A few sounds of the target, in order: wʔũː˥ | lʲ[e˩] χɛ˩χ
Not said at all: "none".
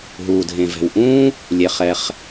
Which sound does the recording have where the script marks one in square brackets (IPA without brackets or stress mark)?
e˩